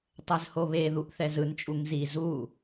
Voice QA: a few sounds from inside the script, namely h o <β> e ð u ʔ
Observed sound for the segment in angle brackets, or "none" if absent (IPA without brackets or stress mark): β